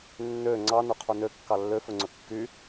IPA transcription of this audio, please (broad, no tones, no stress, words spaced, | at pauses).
nːø ŋ͡ǀɑ nɵqʰunø kːɑlːøfɵŋ͡ǀɵ kːy